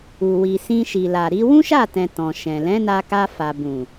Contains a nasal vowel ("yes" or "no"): yes